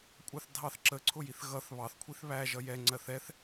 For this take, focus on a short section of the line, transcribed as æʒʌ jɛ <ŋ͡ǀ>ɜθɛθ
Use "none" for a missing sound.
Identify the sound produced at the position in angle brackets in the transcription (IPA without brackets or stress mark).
ŋ͡ǀ